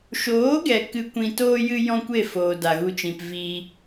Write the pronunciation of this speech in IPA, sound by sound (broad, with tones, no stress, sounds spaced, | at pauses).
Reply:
ʃ oː˨˦ ɡ ɛ˨ k ɨ˧ kʷ ĩ˧ t oː˦ j ɨ˦ j ɔ̃˦ kʷ e˦˨ f oː˨ d a˨ ɣ u˧ t͡ʃ ĩ˨ p v i˦